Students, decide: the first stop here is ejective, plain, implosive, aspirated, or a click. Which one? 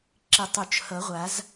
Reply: click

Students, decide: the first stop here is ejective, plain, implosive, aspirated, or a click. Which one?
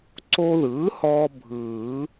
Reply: click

